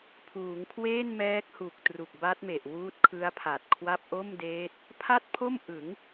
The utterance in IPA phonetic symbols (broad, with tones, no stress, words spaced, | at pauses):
pʰuː˩˦ŋkʰweː˥˩n mɛː˦˥k̚hu˨˩k̚ tru˨˩k̚ba˦˥t̚me˨˩ʔ wuː˦˥t̚kʰɯ˦˥a̯pʰa˨˩t̚kʰwa˥˩p̚ ʔo˥˩mdeː˦˥t̚ | pʰa˥˩t̚pʰo˥˩mʔɯ˩˦ŋ